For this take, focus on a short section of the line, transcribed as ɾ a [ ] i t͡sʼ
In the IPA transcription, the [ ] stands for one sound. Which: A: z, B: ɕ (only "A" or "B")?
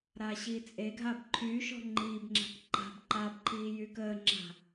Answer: B